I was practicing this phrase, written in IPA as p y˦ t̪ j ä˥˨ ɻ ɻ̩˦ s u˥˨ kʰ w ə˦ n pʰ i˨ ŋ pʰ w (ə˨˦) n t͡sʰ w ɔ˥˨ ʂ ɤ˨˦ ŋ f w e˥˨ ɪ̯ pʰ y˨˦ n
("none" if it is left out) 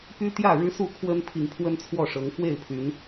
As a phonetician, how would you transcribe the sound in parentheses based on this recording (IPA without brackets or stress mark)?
ə˦